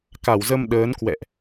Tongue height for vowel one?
low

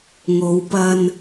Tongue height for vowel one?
mid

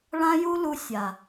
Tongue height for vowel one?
low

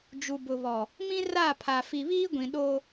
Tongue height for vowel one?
high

